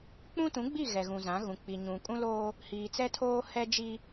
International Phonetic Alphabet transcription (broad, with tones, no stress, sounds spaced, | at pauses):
k͡p ũ˦ t ũ˨˦ ɡ͡b i˦˨ ɣ ɛ˨ ɣ ũ˨ z ã˨˦ ɣ ũ˨ k͡p i˨ ɲ ũ˨ kʼ ũ˦ l oː˦ | h iː˨ t͡s ɛ˦ tʰ oː˦ h ɛ˦ d͡ʒ i˦